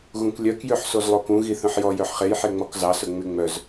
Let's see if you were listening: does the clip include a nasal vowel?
yes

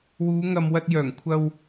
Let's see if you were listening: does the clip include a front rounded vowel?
yes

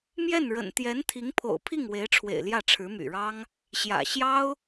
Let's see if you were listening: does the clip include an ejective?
no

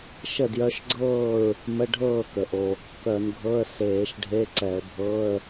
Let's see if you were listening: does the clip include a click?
yes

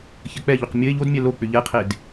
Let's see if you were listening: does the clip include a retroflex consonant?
no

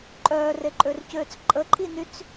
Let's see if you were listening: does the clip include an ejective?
yes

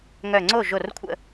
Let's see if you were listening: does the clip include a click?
yes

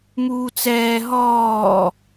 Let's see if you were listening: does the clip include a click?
no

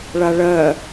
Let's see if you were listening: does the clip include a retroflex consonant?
yes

